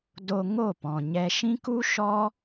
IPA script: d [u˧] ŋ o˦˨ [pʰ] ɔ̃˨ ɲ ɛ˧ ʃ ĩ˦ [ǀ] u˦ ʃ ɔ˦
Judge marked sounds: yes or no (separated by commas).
no, no, no